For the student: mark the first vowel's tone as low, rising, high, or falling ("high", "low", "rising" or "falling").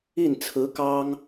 falling